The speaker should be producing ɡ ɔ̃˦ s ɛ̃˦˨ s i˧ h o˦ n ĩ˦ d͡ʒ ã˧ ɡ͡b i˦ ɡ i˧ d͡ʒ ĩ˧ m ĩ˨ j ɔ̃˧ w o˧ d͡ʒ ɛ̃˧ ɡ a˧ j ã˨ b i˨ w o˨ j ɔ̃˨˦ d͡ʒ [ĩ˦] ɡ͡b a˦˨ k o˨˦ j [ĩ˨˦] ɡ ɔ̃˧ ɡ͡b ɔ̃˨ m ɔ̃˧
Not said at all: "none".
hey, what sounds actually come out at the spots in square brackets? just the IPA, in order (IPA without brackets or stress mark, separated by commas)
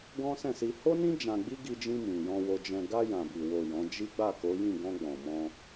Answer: i˦, ĩ˦˨